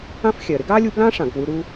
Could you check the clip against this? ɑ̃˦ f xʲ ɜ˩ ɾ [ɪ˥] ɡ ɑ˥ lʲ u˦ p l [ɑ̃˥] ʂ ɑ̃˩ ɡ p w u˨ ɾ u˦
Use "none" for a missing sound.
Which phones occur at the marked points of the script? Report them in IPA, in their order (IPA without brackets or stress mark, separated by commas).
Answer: ɪ˥, ɑ̃˥